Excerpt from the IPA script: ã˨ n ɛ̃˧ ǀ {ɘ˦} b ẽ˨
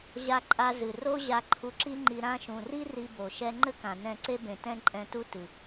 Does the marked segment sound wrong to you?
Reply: yes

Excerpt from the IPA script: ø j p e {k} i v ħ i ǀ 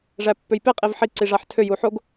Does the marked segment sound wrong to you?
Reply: yes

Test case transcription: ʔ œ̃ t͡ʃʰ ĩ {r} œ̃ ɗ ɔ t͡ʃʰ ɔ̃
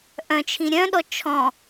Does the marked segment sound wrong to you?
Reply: yes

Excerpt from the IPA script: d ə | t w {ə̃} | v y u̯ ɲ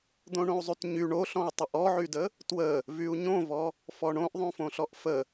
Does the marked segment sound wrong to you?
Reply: yes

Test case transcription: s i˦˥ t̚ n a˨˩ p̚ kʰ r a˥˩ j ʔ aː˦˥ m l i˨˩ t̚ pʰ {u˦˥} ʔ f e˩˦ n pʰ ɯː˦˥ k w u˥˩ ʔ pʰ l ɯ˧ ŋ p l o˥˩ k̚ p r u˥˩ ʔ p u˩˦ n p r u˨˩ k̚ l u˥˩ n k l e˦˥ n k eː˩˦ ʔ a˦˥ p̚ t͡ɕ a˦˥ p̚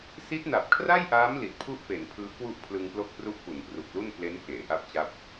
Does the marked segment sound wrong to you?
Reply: yes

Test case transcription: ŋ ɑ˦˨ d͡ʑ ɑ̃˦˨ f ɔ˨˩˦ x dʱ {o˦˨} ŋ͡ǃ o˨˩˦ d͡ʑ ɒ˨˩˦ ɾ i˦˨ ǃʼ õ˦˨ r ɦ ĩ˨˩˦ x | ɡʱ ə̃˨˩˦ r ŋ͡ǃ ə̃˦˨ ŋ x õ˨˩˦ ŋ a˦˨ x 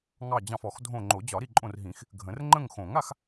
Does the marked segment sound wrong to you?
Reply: yes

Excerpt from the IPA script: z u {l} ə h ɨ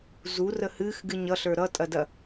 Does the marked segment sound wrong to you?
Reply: yes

